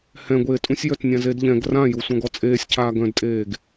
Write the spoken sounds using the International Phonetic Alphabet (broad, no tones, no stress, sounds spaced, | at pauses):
h ɛ̃ ɡʷ eː tʼ ũ sʲ j œ t nʲ ã z e d ʎ ɛ̃ ɡ r ã j u sʷ ã ɡ ɔ t͡sʼ eː sʲ cʰ aː ɡ œ̃ d tʼ eː ɡ